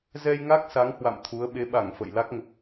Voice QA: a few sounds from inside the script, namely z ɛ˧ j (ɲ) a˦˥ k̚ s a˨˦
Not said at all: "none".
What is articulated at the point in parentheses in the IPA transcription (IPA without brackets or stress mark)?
ŋ